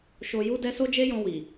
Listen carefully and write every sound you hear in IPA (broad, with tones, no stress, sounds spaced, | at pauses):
ʃ o˧ j u˦ d ɛ˦ s o˦ d͡ʒ e˦ j ɔ̃˧ w i˨